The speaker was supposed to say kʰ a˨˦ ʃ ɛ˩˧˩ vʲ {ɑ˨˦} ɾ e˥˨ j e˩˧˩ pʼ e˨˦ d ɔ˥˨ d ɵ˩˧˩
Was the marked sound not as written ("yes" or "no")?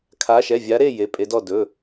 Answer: yes